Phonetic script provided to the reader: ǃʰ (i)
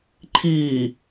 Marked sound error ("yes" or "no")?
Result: no